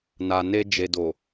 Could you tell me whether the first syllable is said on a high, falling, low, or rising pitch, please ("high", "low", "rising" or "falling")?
low